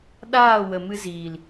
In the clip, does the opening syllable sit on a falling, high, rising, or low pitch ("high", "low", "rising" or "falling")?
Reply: falling